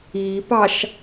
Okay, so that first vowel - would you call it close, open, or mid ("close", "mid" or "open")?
close